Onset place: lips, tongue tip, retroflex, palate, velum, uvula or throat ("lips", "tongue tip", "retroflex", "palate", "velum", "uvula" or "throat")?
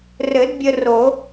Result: tongue tip